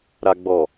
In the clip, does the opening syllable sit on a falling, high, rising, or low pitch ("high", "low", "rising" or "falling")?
low